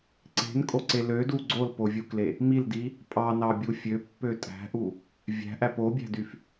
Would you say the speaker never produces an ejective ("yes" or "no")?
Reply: no